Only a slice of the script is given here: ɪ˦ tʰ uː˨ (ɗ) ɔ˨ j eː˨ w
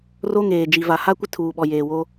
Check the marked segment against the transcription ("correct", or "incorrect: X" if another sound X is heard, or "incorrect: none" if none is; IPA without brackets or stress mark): incorrect: ɓ